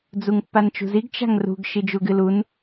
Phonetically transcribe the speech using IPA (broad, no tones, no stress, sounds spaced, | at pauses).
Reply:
d͡z u ŋ pː a n t͡ʃ ṳ z i ɡ t͡ʃ a̤ ŋ r ṳ ɡ ʃ i d͡ʒ u ɡ ɨ l u n